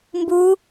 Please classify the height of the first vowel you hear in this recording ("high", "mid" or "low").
high